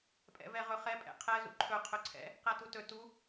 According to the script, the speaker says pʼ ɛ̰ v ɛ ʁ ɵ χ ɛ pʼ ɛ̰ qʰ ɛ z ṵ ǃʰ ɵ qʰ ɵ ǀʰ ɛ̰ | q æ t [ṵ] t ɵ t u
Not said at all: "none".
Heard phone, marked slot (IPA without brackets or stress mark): u